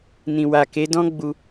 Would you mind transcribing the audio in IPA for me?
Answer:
n ĩ˨ w a˨ k e˨˦ d ɔ̃˦ ɡ͡b u˧

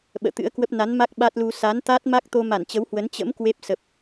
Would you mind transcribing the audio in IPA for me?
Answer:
ɓ ə̰ː˧˨ t̪ ɨ̰˧˥ ə̯ k w ə˦˥ p̚ n a˨˦ n m a˦˥ k̚ ɓ a˦˥ t̚ l u˧ s a˨˦ n t̪ a˦˥ t̚ m a˦˥ k̚ t̪ o˧ m a˧˩ n t͡ɕ ə˨˦ w h w ə˨˦ n t͡ɕ ə̰˧˥ m k w e˦˥ p̚ s ə˨˩ p̚

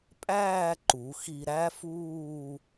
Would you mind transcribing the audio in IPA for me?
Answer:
pʼ æː˥˧ ǃ u˩˧ x i˧ ɾ æ˥ f uː˥˧

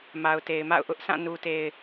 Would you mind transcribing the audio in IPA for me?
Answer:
m a˨ ʊ̯ t e˨ ɪ̯ m a̰˦˨ ʊ̯ ʔ ʊ˦ ʔ sʰ ã˦˨ n u˨ t e˨ ɪ̯

